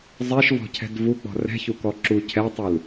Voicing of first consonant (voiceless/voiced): voiced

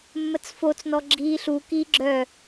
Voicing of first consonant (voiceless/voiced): voiced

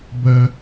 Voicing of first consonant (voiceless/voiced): voiced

